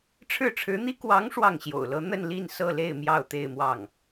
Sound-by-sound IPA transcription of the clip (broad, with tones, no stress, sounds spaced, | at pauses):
ʈ͡ʂʰ ɻ̩˥˩ ʈ͡ʂʰ ɻ̩˧˥ n̪ i˥ k w ɑ˧˥ ŋ ʂ w ɑ˥˩ ŋ ɕ j o̰˨˩ ʊ̯ l ɤ˧˥ n̪ ə˥˧ n l i˥˧ n s ɤ˥˧ l e˥˧ ɪ̯ m j ɑ˥˧ ʊ̯ t̪ e˥˧ ɪ̯ m w ɑ˥˩ ŋ